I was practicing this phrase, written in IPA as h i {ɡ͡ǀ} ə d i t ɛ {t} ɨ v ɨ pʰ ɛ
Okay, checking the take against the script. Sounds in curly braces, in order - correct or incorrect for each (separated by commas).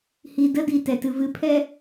incorrect, correct